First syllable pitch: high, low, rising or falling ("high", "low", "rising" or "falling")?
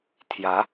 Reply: rising